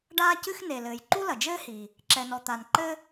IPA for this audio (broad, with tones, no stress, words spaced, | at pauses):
ɖaː˥cɨ˥xne˩lɘː˩j ǃu˥lɐ˩d͡ʒɘː˥hi˩ | ǁɛ˩nɔ˩ t̪a˩n ǃɘ˥